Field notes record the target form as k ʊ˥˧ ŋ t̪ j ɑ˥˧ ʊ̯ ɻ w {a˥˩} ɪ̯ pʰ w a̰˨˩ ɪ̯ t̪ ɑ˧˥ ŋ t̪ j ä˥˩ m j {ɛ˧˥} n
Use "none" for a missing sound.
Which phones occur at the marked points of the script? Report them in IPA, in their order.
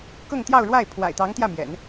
a˥˩, ɛ̰˨˩˦

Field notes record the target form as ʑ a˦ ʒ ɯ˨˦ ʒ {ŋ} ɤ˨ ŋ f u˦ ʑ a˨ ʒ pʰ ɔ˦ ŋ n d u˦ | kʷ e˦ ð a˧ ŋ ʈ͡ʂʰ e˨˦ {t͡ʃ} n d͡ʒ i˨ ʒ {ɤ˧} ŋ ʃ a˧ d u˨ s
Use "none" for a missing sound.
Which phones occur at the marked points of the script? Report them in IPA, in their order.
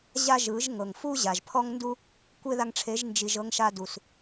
ŋ, ʒ, ɤ˧

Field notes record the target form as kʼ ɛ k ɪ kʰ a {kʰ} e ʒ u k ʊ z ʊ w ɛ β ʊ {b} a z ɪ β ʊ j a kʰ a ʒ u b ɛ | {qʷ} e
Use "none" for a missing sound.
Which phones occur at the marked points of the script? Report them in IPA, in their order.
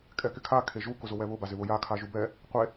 kʰ, b, qʷ

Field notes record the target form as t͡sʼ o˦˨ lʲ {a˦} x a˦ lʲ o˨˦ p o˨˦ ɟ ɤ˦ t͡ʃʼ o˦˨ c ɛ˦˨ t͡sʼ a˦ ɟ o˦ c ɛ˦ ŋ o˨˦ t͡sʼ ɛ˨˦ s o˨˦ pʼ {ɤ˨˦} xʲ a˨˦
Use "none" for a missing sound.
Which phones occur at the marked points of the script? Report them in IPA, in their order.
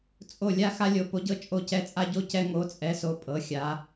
a˦, ɤ˨˦

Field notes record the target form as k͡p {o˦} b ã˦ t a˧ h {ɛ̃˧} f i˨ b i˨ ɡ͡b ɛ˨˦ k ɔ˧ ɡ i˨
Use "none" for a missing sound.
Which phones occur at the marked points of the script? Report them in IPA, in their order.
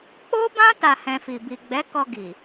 o˦, ɛ̃˧

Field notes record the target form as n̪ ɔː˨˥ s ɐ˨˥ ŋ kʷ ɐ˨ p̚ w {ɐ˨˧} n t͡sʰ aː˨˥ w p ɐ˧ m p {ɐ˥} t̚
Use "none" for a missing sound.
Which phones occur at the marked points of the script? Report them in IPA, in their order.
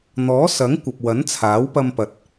ɐ˨˥, ɐ˨˥

